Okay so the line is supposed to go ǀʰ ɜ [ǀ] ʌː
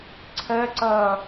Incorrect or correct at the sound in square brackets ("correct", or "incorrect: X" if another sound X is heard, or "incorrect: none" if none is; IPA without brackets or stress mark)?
correct